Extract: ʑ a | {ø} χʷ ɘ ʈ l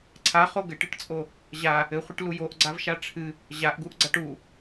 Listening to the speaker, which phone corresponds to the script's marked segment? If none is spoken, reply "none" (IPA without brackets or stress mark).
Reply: ɘ